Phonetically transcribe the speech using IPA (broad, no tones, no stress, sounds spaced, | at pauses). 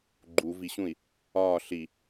ɡ͡ǃ u v i ɕ ũ i̯ | ɒː ɬ i